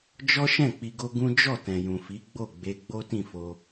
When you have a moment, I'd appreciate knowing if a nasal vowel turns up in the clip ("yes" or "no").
yes